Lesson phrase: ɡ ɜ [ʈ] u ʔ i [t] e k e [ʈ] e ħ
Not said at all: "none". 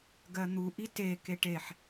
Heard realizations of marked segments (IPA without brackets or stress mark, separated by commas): n̪, t, ʈ